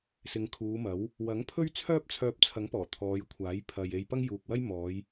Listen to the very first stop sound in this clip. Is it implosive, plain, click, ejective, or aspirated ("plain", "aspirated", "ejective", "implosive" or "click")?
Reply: aspirated